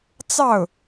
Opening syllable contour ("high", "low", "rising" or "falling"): falling